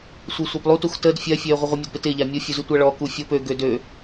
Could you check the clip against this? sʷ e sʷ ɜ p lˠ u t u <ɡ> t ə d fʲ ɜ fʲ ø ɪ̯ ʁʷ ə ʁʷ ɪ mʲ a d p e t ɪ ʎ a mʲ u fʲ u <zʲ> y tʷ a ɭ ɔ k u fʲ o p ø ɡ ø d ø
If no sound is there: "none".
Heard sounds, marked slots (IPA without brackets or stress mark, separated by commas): x, z